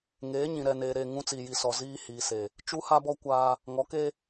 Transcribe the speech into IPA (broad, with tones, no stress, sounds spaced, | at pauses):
ŋ eː˨˦ ɲ ĩ˨ ɾ ɛ˨ n eː˨ ɾ e˦˨ ŋ ũ˦ t͡s iː˨ j i˨ s ɔ˨ z iː˦ h iː˨ s e˨ | t͡ʃ u˦ h a˦ b ɔ˦ kʷ a˦ | ŋ ɔ˨˦ k e˦